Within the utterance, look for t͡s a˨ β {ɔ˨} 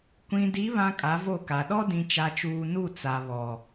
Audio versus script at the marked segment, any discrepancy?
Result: no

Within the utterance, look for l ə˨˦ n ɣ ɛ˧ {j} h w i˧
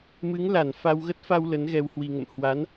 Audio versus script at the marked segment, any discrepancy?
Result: yes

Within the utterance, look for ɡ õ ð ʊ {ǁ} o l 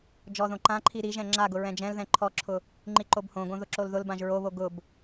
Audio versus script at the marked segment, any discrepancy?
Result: no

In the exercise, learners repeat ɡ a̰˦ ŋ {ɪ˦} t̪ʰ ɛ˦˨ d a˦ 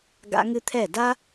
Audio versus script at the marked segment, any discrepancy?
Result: yes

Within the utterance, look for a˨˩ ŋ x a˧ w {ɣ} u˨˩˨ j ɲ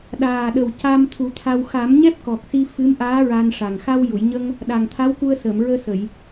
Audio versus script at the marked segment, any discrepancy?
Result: yes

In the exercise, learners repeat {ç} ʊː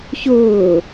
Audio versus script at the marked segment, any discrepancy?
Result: no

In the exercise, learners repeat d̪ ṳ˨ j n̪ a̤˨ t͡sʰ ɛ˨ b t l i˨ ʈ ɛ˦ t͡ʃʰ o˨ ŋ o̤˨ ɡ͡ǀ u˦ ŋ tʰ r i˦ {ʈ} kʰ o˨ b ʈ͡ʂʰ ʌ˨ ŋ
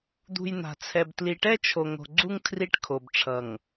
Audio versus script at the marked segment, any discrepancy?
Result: no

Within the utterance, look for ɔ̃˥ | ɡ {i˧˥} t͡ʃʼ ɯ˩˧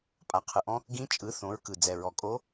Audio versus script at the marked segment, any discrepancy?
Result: yes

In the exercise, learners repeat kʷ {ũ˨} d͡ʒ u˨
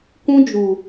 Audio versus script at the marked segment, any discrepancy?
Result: yes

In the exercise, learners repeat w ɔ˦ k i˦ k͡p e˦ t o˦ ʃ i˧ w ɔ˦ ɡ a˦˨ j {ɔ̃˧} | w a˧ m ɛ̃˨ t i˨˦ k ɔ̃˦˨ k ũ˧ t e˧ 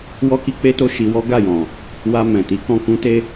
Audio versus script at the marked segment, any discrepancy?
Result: yes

